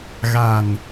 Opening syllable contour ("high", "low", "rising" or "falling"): low